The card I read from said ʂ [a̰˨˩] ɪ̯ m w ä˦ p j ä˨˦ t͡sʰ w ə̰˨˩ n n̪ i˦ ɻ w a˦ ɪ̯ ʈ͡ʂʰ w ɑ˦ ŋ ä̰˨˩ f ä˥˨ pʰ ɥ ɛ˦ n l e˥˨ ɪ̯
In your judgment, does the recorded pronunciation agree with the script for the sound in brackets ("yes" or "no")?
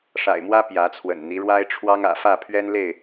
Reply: yes